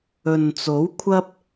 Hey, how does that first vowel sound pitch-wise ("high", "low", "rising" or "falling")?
low